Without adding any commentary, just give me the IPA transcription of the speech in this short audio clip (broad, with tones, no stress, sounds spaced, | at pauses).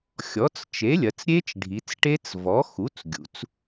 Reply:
xʲ ɔ˩˥ t͡s t͡ʃ e˩˥ lʲ ɐ˩˧ t͡s ɾʲ e˦˥ t͡ʃ ɖʱ i˩˧ t͡s ʈ e˦˥ t͡s v ɔ˩˥ x u˩˥ t͡s ɡʲ ṵ˩˧ t͡s